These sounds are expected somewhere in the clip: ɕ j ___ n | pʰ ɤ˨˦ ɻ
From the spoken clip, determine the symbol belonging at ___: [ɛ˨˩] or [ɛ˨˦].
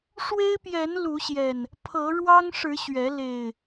ɛ˨˩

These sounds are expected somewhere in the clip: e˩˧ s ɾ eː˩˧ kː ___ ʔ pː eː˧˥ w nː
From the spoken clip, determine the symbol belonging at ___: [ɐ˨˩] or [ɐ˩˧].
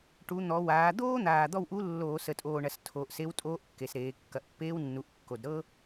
ɐ˨˩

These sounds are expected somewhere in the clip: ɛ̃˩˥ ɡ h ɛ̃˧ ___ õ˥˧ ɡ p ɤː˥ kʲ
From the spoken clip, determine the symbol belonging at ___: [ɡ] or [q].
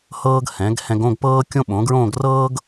ɡ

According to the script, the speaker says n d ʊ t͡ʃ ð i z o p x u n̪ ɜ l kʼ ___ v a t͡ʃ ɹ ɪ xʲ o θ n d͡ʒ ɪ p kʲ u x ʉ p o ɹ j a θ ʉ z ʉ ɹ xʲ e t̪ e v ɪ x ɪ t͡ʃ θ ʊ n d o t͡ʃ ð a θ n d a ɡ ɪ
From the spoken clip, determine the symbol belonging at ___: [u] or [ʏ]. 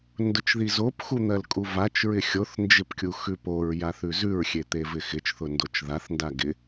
u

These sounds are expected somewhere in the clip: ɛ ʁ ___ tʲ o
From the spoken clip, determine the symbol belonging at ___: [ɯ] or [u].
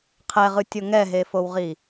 ɯ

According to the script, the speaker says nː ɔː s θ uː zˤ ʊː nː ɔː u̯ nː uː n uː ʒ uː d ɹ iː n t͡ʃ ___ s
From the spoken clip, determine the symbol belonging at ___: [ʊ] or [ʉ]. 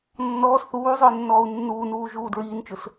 ʊ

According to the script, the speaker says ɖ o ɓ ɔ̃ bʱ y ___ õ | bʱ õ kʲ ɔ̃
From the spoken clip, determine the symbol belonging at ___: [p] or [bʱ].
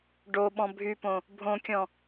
p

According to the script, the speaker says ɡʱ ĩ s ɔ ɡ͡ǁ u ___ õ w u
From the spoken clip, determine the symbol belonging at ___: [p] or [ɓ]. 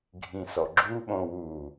ɓ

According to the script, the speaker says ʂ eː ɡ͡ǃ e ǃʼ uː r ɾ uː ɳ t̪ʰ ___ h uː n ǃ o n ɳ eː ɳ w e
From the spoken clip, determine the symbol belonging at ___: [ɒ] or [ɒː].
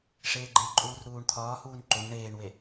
ɒː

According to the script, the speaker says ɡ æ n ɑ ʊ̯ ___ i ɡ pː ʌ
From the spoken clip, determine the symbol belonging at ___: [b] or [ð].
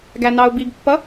b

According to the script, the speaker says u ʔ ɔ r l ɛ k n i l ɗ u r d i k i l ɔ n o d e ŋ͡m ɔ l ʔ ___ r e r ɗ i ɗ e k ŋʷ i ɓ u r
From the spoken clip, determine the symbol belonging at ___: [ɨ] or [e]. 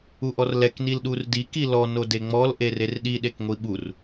e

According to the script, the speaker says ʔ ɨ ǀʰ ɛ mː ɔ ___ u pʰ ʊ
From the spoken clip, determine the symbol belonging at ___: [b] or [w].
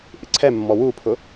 w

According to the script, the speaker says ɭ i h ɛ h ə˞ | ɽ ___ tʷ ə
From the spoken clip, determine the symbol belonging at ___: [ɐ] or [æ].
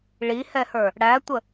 æ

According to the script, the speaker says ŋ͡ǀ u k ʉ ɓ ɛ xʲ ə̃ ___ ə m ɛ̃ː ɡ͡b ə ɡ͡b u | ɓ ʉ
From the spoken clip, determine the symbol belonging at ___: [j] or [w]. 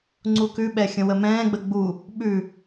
w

